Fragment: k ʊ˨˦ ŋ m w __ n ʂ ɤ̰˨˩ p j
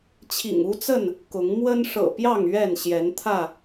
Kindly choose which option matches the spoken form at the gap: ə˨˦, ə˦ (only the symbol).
ə˦